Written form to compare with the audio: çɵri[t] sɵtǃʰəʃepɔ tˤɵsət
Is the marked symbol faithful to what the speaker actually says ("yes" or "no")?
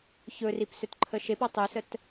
no